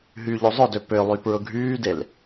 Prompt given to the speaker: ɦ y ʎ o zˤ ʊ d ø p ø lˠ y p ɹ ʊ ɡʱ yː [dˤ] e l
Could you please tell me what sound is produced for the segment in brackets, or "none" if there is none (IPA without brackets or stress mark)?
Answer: d